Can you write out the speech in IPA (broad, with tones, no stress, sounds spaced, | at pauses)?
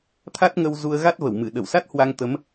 t̪ʰ a˦˥ t̚ ŋ ə˧ w z u˧ ə̯ ɣ a˦˥ t̚ v ə˧˩ w m ɨ˧˩ ɗ ə˧˩ w s a˦˥ t̚ h w a˧ ŋ t̪ ə˨˦ m